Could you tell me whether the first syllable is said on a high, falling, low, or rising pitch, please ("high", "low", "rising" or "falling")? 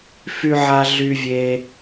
high